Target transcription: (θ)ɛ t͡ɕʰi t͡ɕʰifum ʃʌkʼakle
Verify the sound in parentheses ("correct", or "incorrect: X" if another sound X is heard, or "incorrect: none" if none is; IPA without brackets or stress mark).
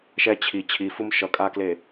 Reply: incorrect: ʃ